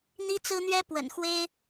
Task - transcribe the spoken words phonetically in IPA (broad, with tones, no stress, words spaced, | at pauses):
n̪i˥t͡sɹ̩˥n̪ɥɛ˥pwə̰˨˩n xwe˥ɪ̯